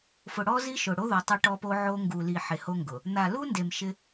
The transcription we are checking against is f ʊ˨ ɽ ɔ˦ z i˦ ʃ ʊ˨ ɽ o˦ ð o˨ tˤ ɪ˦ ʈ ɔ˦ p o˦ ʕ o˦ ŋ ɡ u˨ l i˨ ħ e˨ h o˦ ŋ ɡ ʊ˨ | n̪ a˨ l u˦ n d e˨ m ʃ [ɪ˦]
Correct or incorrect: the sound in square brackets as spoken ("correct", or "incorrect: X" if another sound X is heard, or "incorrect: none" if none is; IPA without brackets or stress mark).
correct